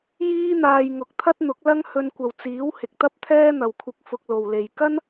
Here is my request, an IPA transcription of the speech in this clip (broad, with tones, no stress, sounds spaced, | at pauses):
j iː˥ n̪ aː˧ j ŋ ʊ˨˥ k̚ t̪ʰ ɐ˥ t̚ n̪ ʊ˨˥ k̚ l ɐ˥ ŋ h ɵ˧ n kʷ ɐ˨ w t͡s iː˨˥ w h ɪ˨ k̚ t̪ ɐ˥ p̚ t̪ʰ ɛː˥ n̪ ɐ˨ w kʷʰ ɪ˧ k̚ f ʊ˧ k̚ l o˨ w l e˨ j k ɐ˥ n